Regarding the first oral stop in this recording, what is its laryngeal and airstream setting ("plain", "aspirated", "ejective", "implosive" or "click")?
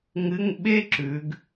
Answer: implosive